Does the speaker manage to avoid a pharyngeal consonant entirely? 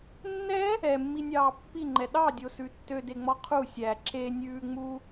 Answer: yes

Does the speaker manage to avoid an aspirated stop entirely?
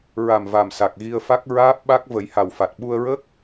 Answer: yes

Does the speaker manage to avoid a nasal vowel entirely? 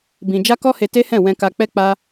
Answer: no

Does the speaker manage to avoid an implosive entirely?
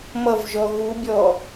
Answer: yes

